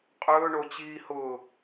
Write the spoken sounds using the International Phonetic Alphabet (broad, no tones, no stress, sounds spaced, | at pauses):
qʼ ɵː ɳ o t͡ɕ iː h ʊː